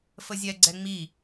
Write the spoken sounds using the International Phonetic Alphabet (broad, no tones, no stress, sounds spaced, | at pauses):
f ə zʲ ɛ ɡ͡ǀ ɛ ŋ͡m i